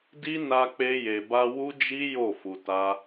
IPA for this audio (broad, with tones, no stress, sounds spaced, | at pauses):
d i˦ n a˧ k͡p e˧ j e˨ b a˧ w u˦ d͡ʒ i˦ j o˦˨ f u˧ t a˦